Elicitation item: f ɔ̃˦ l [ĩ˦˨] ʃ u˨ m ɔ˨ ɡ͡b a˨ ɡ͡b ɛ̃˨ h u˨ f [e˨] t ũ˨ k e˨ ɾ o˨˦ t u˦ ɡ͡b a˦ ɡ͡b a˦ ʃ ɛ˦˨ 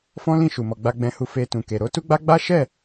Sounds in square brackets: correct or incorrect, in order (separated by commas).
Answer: correct, correct